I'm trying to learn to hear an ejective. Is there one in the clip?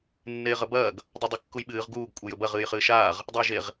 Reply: yes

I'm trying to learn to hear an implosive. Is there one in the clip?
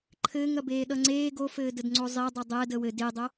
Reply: yes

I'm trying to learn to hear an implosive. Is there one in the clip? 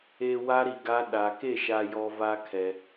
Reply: yes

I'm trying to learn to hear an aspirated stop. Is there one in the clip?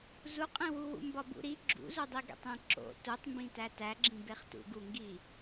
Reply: no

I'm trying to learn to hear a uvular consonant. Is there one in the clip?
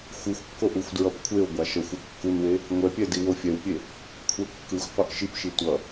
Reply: yes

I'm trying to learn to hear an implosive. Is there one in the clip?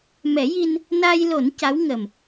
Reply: no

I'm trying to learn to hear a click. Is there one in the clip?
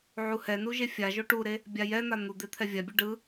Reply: no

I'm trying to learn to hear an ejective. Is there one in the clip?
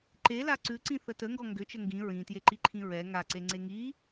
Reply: no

